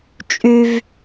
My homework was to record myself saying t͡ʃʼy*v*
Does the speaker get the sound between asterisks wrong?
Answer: no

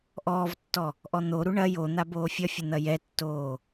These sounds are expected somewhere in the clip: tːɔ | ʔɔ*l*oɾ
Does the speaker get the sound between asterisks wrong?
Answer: yes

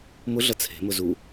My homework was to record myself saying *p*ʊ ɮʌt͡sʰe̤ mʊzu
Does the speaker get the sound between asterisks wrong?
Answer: yes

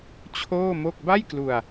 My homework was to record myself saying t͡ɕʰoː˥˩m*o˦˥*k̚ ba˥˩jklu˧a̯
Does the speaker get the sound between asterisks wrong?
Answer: yes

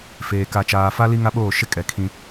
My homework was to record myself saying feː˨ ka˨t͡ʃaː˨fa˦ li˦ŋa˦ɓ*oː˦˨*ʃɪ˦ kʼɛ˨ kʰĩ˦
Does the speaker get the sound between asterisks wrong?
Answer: no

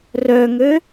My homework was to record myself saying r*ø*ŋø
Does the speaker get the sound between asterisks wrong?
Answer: yes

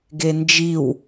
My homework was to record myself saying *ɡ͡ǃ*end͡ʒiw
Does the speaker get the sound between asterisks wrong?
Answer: yes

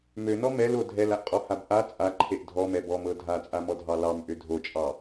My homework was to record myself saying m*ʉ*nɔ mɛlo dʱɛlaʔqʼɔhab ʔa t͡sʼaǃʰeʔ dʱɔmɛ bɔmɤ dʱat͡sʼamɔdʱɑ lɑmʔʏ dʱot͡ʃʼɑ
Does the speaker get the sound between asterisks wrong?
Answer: yes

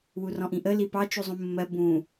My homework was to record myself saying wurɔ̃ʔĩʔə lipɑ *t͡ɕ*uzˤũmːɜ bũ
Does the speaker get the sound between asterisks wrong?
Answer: yes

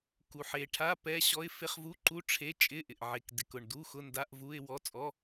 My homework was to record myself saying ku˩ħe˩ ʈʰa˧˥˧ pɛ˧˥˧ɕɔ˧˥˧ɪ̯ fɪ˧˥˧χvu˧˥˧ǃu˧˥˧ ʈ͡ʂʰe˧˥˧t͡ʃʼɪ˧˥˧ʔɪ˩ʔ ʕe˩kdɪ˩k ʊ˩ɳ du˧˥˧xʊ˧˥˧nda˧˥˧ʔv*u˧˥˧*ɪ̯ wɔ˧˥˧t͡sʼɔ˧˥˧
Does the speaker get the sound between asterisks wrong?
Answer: no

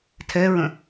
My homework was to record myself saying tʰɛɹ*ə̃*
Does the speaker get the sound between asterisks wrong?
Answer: no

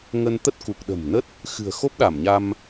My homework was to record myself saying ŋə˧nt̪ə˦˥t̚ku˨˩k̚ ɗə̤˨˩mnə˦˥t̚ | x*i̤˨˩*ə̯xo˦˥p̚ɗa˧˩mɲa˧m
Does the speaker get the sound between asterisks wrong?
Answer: yes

